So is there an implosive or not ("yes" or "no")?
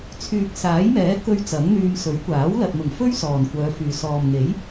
no